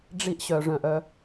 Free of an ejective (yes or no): yes